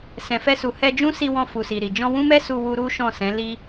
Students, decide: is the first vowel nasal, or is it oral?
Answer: nasal